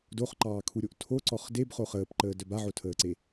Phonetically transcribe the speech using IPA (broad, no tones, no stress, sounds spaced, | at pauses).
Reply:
d o χ ǃ ɑː kʰ u ɾʲ o ʔ tʰ o ǀ ɔ χ d e b χ o χ əː p ǃ əː d œ b a ʕ o tʰ əː ǀ e